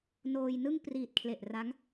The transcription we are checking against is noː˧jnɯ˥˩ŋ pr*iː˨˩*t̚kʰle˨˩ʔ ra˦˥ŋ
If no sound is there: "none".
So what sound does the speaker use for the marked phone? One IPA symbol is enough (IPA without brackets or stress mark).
iː˨˩